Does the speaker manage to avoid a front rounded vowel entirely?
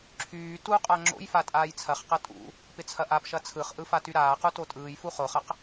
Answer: no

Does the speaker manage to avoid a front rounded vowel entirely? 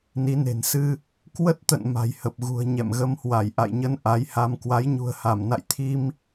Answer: yes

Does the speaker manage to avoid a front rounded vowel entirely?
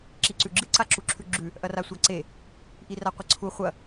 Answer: yes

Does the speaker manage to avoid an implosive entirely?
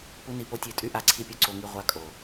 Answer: yes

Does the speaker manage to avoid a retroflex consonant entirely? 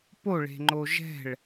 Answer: no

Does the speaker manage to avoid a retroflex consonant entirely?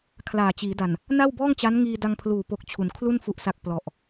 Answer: yes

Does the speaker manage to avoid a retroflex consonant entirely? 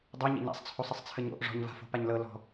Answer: no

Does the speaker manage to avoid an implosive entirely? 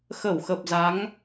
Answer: yes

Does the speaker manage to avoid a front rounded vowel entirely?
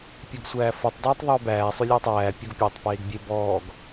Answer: no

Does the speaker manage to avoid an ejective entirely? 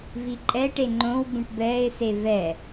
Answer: no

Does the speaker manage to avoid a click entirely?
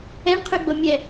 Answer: yes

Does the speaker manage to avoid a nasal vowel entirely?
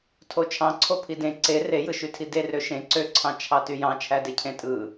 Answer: no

